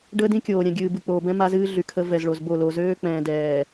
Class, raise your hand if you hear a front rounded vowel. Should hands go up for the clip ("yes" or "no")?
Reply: yes